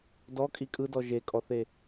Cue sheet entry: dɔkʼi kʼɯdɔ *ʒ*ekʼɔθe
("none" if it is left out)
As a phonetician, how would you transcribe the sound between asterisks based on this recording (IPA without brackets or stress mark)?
ʒ